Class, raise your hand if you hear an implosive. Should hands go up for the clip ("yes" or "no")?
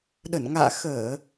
yes